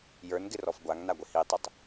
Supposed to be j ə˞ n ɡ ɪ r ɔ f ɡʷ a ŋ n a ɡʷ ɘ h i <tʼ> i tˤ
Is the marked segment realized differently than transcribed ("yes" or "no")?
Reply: yes